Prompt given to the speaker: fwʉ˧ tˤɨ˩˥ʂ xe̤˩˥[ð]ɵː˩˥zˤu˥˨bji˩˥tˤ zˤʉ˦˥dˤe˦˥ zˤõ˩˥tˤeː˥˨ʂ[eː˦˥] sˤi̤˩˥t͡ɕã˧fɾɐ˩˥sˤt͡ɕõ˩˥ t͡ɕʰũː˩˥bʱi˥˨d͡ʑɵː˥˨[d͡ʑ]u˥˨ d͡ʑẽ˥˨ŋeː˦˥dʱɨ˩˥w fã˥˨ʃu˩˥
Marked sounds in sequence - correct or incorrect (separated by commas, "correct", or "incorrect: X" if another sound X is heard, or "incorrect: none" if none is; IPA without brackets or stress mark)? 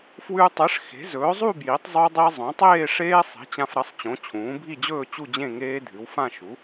incorrect: z, correct, incorrect: t͡ɕ